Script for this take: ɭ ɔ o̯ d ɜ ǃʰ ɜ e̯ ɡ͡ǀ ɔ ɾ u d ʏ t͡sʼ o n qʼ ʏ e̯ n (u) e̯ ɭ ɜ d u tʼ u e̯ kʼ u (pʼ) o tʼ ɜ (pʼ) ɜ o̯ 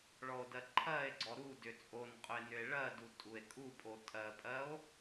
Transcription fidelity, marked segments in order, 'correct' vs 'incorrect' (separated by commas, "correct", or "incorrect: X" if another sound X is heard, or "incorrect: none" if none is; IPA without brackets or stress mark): incorrect: ʏ, correct, correct